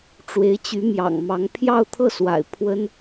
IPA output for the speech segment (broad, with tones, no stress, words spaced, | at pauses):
ʈ͡ʂwe˧˥ɪ̯t͡ɕy˧˥mjɑ̰˨˩ŋ mɑ˧˥ŋ pʰjɑ˥˧ʊ̯t̪ʰɤ˥˩swa̰˨˩ɪ̯ pʰwə˥n